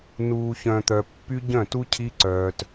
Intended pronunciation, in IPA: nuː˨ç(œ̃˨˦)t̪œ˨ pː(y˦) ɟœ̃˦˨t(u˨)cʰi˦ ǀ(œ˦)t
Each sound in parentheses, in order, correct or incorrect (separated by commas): incorrect, correct, incorrect, incorrect